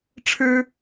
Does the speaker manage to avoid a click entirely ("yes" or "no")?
yes